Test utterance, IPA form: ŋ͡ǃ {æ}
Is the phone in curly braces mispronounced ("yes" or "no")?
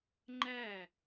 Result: no